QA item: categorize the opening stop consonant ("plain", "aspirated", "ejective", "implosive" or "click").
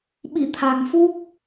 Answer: implosive